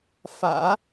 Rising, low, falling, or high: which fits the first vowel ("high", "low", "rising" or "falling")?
low